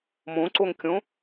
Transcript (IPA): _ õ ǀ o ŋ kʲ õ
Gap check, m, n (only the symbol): m